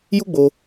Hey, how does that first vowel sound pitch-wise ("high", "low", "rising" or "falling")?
high